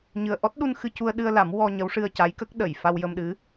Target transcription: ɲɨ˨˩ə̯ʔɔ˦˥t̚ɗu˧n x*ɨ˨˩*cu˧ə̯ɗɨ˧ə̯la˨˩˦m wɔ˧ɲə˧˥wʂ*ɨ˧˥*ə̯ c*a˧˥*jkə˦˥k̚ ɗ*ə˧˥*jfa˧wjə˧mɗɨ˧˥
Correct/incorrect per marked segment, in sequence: incorrect: ɨ˧, incorrect: ɨ˧, correct, incorrect: ə˨˩˨

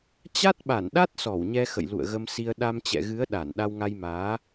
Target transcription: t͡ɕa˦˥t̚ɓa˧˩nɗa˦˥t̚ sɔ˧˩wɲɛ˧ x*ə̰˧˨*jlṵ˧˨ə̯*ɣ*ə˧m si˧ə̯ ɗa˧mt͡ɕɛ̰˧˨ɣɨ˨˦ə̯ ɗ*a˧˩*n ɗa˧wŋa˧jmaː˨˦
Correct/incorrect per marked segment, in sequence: correct, correct, correct

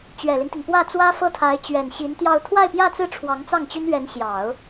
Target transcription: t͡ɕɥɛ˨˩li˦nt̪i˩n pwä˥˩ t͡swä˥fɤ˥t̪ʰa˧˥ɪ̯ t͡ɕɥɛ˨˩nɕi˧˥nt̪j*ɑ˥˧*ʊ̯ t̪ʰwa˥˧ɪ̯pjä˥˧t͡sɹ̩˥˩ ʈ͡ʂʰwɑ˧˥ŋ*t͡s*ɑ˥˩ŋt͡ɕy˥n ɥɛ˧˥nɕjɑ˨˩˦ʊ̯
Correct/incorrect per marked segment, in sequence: correct, correct

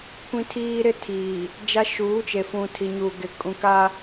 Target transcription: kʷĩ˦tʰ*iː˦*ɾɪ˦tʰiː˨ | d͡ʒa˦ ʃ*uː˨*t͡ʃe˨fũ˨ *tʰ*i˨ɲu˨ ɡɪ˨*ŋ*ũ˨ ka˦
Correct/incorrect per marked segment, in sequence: correct, incorrect: uː˨˦, correct, incorrect: kʼ

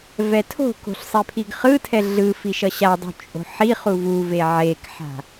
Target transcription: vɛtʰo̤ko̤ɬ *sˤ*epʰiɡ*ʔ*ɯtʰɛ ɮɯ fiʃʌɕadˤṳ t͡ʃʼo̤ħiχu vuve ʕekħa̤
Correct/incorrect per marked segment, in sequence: correct, incorrect: χ

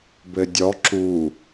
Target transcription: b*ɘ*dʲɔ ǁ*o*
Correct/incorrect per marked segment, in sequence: correct, incorrect: u

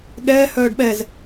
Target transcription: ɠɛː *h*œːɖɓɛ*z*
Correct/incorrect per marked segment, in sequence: correct, correct

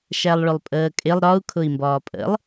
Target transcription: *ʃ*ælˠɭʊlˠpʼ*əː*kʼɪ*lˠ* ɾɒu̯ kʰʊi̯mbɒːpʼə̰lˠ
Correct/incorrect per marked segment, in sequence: correct, correct, correct

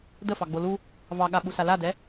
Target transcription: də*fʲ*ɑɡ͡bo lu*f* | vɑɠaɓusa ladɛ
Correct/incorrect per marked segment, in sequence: incorrect: f, incorrect: none

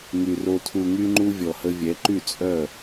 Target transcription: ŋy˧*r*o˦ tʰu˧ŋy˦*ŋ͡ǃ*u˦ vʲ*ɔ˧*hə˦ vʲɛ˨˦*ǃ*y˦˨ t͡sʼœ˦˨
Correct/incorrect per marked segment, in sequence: correct, correct, correct, correct

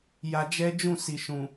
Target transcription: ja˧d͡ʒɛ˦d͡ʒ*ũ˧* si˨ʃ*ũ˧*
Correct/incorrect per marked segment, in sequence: incorrect: ũ˦˨, incorrect: ũ˨

